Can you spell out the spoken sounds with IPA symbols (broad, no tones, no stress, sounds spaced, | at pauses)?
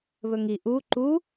β ɵ ŋ i ʔ u ǃ u